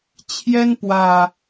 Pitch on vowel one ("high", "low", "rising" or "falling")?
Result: high